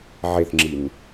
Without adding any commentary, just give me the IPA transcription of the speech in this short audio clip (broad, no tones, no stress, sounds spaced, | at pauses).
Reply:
ʕ e θ ŋ͡ǁ i n